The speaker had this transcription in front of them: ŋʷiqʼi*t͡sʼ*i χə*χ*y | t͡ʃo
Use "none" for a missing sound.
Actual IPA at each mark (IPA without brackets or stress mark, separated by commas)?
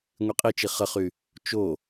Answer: t͡ʃ, χ